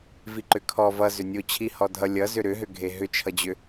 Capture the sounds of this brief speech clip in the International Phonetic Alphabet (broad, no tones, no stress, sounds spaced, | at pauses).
v i ǃ ʏ kʰ ɔ v ʌ z ʏ nʲ o t͡ɕʰ i h ɔ dʱ ʌ lʲ ʌ z ʏ ɾ ʏ ɦ ʏ ɡʱ e ɦ ʏ t͡ʃʰ ʌ d͡ʑ ʏ